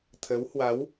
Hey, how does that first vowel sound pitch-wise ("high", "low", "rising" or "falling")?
rising